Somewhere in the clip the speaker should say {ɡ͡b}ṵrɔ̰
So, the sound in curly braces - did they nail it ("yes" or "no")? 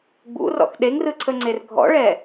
yes